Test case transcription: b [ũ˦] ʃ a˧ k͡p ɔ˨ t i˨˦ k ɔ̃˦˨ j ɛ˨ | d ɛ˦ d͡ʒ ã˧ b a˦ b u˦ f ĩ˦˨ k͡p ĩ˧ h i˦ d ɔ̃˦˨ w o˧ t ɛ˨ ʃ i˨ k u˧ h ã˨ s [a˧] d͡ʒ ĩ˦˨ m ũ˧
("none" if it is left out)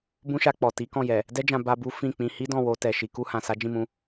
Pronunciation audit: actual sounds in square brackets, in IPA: ũ˦, a˨˦

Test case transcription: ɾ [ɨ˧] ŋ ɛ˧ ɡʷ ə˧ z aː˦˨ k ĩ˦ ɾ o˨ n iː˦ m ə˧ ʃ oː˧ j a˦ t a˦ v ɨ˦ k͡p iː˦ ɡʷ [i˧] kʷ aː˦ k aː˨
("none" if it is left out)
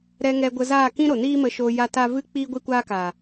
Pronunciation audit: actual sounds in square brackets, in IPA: ɛ˧, i˦

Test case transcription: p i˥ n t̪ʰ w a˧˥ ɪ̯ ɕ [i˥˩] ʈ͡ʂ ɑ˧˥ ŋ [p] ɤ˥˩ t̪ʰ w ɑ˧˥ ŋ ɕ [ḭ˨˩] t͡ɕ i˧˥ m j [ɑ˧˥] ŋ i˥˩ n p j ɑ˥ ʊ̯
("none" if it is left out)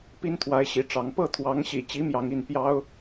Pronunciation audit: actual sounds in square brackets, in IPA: i˧˥, p, ḭ˨˩, ɑ˧˥

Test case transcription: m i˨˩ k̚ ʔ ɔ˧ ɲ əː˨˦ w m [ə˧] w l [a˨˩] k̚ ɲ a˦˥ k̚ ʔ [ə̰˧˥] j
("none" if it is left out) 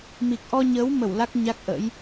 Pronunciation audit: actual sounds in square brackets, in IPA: ə˧˩, a˦˥, ə̰˧˥

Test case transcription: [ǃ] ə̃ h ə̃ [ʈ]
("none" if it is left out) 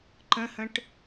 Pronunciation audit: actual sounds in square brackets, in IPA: ǃ, ʈ

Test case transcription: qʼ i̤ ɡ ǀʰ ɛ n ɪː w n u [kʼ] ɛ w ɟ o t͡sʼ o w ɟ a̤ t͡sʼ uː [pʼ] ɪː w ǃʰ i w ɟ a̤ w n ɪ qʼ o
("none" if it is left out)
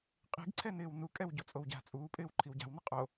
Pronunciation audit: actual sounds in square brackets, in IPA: kʼ, pʼ

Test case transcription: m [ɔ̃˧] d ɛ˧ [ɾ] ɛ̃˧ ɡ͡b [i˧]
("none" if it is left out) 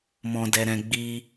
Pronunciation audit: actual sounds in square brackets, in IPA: ɔ̃˧, ɾ, i˧

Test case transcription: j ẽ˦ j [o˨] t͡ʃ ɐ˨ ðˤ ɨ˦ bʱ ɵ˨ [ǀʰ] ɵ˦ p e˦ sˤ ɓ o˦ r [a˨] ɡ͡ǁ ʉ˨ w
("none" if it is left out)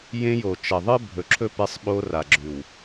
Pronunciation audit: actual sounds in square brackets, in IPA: o˨, ǁʰ, a˨

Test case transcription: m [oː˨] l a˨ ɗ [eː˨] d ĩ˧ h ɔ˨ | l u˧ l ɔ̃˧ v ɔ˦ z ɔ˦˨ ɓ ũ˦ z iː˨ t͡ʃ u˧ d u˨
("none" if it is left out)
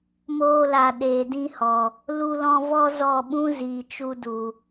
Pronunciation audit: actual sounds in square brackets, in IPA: oː˧, eː˨

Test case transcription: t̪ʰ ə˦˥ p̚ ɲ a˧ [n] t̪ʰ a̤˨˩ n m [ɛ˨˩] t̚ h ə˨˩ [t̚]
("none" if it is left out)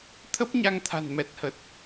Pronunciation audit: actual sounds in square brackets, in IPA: ŋ, ɛ˨˩, t̚

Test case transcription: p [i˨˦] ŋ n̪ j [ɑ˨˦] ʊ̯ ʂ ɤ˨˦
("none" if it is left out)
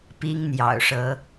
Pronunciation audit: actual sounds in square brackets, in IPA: i˦, ɑ̰˨˩

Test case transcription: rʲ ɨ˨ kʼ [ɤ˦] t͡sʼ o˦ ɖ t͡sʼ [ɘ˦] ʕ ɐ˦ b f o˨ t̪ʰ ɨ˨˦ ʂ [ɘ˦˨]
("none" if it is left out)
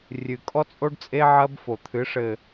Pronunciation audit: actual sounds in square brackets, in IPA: ɔ˦, e˦, ɘ˨

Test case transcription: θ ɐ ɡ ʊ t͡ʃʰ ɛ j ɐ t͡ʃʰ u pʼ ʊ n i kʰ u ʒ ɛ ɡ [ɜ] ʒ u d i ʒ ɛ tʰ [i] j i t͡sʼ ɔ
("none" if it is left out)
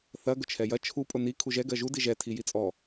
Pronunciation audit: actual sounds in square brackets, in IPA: ɜ, i

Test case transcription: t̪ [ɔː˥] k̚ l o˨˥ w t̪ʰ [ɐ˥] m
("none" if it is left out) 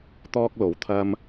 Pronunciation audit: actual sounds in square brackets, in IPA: ɔː˥, ɐ˥

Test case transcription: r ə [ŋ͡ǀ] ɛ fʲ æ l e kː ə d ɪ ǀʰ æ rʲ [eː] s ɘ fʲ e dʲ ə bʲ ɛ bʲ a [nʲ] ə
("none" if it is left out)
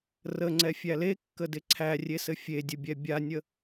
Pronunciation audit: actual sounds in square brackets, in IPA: ŋ͡ǀ, e, nʲ

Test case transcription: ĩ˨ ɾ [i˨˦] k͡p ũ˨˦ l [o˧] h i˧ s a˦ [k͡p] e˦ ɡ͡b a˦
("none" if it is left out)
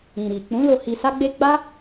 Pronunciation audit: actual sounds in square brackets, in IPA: i˨, o˧, ɡ͡b

